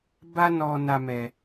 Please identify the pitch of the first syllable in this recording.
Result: high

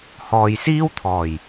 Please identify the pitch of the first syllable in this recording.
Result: low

